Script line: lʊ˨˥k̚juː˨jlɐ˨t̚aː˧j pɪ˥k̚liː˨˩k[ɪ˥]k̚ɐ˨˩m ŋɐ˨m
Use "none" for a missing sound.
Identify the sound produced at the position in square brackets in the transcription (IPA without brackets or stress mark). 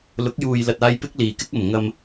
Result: ɪ˥